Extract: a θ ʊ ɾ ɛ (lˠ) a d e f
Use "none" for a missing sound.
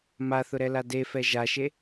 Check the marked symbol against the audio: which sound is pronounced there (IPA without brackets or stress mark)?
l